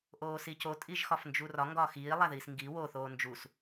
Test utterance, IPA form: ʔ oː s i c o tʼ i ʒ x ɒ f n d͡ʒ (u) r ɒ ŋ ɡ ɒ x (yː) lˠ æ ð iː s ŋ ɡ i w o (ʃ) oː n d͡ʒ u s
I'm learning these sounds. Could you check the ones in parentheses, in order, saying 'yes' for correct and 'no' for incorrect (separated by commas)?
yes, no, no